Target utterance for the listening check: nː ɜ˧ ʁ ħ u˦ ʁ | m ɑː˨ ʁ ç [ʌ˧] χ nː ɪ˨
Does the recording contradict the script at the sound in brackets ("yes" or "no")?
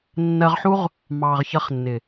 no